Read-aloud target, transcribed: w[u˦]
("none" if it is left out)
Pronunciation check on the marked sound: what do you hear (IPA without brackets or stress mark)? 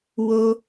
o˦